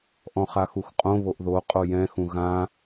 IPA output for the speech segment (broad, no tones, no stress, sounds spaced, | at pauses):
ʔ ɔ̃ χ a x u x qʼ õ β o ʔ ð o qʼ o j ɛ̃ x ũ ɣ ã